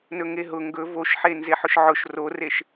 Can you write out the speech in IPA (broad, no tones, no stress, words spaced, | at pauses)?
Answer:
nɵŋeɦʊ ŋɡɵ voʃħe nzeħʊʃʕʊʃ roreʃ